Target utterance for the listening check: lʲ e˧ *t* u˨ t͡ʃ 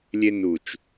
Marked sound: incorrect: n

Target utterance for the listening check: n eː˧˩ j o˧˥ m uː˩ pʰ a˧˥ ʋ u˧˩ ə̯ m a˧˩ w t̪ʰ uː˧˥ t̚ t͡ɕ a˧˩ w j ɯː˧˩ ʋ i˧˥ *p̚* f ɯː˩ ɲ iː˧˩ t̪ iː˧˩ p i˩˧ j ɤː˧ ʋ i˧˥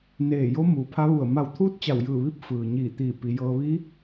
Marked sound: correct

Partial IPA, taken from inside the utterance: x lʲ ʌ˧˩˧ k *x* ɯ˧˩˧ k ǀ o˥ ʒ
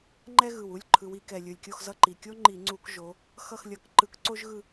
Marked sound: incorrect: ǃ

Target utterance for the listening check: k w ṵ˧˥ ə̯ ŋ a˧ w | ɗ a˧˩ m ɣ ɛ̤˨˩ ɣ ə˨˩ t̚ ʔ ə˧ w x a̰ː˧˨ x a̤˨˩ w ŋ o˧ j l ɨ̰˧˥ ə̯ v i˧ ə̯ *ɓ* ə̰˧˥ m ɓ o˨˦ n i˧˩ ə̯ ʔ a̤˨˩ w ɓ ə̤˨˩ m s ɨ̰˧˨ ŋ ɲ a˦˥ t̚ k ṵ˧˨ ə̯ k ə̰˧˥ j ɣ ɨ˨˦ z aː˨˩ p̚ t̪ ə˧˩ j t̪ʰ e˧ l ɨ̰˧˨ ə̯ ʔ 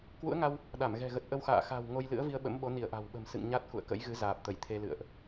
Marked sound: correct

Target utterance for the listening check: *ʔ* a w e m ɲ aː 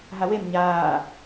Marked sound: incorrect: ɦ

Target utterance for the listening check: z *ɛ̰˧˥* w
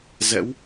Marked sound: correct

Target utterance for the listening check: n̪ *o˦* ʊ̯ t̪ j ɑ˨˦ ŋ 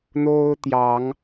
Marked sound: correct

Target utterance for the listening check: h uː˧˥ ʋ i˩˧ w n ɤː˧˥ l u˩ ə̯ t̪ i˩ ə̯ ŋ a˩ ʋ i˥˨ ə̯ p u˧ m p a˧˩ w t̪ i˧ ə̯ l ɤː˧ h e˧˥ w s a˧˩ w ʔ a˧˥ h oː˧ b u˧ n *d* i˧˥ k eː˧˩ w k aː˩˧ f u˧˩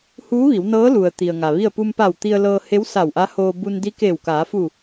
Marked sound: correct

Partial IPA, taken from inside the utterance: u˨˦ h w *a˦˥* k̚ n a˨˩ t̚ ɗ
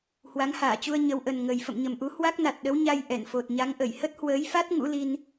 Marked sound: correct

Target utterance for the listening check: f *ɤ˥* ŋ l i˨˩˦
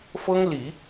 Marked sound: correct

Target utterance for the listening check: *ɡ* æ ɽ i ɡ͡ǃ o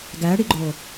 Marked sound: correct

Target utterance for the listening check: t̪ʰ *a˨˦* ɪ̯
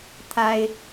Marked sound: incorrect: a˦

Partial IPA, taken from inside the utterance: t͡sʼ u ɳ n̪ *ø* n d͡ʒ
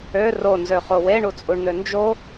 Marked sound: correct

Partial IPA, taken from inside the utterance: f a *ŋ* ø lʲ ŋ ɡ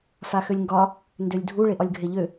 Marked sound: incorrect: x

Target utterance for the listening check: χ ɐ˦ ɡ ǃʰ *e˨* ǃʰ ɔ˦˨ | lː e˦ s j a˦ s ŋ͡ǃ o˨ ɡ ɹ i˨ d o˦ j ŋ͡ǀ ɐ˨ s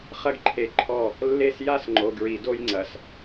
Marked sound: correct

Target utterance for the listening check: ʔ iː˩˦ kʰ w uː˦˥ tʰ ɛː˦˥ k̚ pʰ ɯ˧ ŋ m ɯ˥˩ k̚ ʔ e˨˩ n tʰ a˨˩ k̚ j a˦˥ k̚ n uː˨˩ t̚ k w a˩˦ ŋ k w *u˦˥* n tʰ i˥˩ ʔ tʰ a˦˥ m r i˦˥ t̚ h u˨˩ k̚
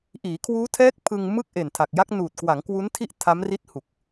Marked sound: correct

